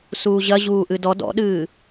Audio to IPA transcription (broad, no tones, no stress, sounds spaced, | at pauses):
s uː ʑ ɐ ʑ uː ʔ ɨ d ɔ d ɔ̰ ɗ ɨː